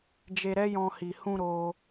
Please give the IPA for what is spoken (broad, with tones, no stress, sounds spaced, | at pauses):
d͡ʒ e˧ ɾ ɛ˦ j ɔ̃˧ h i˨ h ũ˧ ɾ o˦